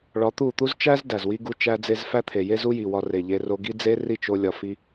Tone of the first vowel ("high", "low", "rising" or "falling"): rising